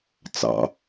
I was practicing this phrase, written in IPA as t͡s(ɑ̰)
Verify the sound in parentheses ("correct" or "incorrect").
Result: correct